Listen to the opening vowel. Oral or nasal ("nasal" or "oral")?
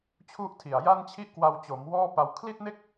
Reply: oral